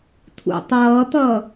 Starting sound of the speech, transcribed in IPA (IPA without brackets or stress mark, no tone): tʰ